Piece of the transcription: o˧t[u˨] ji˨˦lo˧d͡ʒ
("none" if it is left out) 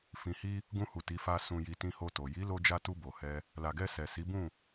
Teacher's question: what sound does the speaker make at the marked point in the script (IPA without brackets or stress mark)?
o˨